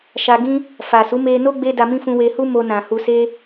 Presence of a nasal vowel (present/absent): present